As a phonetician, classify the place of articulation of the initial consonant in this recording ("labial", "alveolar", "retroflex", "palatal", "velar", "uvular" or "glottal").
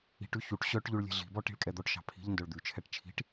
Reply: retroflex